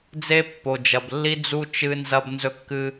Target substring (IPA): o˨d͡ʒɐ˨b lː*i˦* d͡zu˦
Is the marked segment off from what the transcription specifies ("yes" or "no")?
no